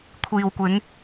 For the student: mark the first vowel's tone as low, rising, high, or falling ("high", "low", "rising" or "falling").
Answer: low